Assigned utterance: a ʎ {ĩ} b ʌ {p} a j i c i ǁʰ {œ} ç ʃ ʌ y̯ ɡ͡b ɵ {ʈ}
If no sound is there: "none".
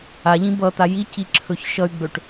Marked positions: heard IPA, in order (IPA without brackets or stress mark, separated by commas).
ĩ, t̪, ɵ, ʈ